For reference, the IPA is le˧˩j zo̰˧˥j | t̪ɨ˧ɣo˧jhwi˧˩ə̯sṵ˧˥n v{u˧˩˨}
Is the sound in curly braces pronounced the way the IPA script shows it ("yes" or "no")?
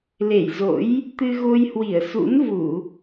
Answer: yes